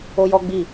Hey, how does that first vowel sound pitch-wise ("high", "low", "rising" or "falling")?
high